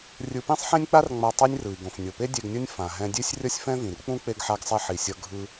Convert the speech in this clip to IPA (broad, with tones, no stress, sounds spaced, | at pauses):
rʲ ɯ˧ p ĩ˥ sˤ ħ ẽ˥ nʲ k͡p a˥ r ŋ͡m a˧ tˤ i˥ nʲ r ɯ˩ i̯ ɡ õ˩ f nʲ o˩ p e˥ dʲ e˧ ɡ nʲ ʌ˥ nʲ f ã˩ ɦ ɛ̃˧ dʲ e˥ sʲ rʲ ʌ˥ sʲ f ɛ̃˥ v ĩ˩ r k͡p ũ˥ k͡p e˧ ɡ ħ a˧ ɡ sˤ ɛ˧ ħ i˩ sʲ ʌ˧ ɡʱ ɯ˧